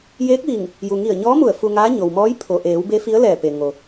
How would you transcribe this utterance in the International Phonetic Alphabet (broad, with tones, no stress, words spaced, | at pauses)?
jeː˧˥k̚ʋi˧˩ŋ | ju˩ŋi˧˩ə̯ɲɔː˧˥mu˧˩ə̯ fu˧ŋaː˧˥ ɲo˩wmɔː˧˥j pʰo˩ʔeː˩˧w be˧˥fi˧˥ə̯lɛː˧˩pe˩ ŋo˩